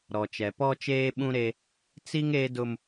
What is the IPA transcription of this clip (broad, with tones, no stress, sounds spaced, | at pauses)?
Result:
ɾ ɔ˨ t͡ʃ ɛ˨ p ɔ˦ t͡ʃ eː˦ ɓ ũ˦ ɾ e˦ | t͡s i˦ ŋ eː˦ d ʊ˦ m